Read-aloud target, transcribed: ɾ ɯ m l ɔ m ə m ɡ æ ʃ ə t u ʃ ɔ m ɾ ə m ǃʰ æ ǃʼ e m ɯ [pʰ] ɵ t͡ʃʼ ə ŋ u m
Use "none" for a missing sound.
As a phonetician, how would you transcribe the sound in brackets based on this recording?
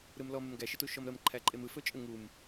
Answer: f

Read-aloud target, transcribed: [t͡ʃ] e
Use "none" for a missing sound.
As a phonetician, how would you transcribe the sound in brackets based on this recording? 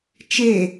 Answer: t͡ʃ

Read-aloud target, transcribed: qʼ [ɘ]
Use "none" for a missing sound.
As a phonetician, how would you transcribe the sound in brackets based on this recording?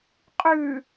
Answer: ʉ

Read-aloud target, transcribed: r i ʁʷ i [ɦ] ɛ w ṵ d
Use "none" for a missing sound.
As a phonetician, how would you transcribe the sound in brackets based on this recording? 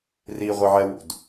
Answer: ʕ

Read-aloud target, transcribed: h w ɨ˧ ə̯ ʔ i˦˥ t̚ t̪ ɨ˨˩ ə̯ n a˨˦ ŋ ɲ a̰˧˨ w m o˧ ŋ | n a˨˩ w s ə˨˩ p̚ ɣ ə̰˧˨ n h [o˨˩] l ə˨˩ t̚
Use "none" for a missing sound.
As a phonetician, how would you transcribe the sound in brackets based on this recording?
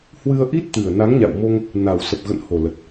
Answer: o˨˩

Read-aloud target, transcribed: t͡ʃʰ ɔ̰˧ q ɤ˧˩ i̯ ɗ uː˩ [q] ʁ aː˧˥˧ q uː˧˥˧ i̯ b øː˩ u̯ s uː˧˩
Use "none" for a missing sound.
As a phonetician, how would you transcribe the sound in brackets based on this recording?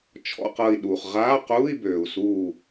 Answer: χ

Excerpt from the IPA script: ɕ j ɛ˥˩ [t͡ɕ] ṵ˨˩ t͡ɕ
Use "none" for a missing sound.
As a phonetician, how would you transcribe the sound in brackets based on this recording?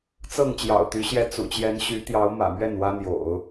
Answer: t͡s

